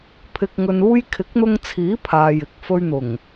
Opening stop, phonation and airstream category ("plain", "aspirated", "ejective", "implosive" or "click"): aspirated